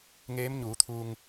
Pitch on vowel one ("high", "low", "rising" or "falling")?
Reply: rising